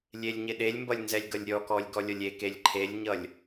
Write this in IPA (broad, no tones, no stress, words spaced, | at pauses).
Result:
lʲelʲɲɪɗelʲmbʌlʲ nzɛlʲɡʌlʲɾʲɔkɔlʲ ɡɔlʲʌlʲekelʲ ǃʰelʲɲʌlʲ